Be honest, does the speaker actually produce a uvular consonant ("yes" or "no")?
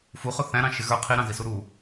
yes